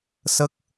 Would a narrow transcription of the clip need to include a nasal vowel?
no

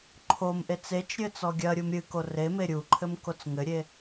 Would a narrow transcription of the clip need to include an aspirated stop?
yes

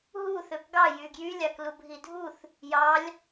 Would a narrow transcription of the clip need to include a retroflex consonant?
no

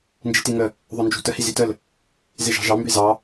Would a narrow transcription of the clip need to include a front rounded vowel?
yes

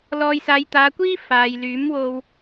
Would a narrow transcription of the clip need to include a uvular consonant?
no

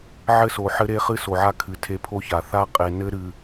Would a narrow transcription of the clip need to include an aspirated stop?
yes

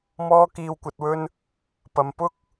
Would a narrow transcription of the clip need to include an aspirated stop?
no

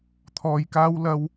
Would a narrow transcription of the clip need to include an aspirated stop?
yes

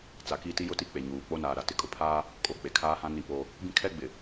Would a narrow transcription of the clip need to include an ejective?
yes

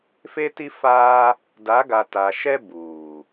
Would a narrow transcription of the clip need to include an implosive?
no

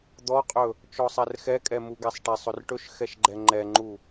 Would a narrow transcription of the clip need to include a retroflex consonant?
yes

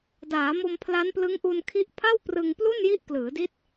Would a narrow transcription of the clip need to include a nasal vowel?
no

